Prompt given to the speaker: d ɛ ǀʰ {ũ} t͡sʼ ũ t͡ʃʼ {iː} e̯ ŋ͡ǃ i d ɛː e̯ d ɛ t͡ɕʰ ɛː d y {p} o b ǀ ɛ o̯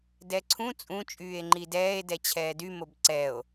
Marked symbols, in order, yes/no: yes, no, no

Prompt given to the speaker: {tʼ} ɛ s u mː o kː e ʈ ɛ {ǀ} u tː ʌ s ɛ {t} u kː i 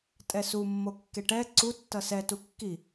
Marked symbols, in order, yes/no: yes, yes, yes

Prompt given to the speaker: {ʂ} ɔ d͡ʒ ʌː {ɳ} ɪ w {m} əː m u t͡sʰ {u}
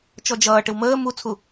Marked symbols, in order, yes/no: no, no, yes, yes

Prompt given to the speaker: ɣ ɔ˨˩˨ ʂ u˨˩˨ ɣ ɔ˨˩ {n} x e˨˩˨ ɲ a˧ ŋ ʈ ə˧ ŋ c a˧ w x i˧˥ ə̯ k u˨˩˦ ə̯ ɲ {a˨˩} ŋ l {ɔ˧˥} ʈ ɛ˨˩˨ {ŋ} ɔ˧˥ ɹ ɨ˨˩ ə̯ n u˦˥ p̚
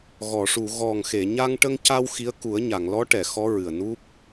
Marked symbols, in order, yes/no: no, no, yes, no

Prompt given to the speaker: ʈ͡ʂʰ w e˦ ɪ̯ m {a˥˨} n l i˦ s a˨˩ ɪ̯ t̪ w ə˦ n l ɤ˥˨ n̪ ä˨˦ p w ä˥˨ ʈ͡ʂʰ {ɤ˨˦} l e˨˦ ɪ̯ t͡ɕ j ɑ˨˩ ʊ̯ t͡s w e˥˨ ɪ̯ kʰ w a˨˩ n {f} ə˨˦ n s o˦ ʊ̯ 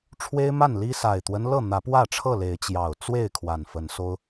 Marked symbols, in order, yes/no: yes, no, yes

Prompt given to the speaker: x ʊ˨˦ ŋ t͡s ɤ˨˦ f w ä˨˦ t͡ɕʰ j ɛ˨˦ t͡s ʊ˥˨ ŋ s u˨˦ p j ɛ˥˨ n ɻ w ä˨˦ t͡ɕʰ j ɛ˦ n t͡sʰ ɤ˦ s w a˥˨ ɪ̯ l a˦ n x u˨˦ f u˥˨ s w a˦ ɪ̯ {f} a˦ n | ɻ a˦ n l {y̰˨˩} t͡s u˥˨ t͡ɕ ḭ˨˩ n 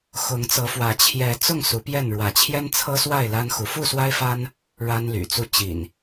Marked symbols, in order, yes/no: yes, yes

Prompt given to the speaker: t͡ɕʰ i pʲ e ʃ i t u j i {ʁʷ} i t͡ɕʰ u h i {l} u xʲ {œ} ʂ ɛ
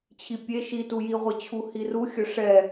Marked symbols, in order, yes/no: yes, no, yes

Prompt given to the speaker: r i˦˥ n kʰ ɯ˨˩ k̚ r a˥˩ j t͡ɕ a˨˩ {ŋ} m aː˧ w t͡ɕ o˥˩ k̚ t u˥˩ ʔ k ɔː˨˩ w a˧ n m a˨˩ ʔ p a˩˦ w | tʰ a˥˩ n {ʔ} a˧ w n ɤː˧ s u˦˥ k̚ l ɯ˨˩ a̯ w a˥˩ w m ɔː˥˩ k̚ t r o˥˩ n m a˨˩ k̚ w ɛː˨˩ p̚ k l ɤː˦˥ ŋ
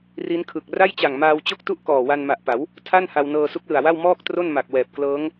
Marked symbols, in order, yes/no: yes, no

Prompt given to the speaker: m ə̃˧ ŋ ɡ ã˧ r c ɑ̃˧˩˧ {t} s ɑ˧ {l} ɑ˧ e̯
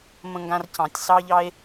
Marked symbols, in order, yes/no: no, no

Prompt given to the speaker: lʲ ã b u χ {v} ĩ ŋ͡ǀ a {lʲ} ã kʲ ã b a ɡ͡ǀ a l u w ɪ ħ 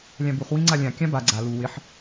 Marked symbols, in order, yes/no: no, yes

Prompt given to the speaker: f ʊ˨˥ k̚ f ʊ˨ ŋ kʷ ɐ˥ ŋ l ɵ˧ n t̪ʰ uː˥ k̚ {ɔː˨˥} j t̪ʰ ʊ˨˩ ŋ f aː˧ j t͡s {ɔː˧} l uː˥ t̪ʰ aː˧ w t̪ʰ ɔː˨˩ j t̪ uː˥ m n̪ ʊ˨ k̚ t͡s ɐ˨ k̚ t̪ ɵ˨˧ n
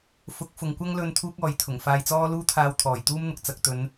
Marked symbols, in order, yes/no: no, no

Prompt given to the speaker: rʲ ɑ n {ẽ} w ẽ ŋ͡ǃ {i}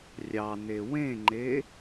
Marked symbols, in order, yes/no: no, no

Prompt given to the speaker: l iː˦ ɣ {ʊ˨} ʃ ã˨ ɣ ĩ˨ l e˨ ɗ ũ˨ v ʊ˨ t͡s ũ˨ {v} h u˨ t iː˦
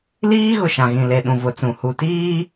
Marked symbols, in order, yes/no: yes, no

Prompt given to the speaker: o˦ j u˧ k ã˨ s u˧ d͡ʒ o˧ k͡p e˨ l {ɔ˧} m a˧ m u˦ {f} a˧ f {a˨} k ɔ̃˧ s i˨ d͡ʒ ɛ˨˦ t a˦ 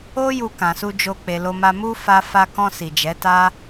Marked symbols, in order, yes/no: no, yes, no

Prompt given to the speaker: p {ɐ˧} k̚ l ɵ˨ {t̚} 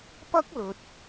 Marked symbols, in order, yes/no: no, yes

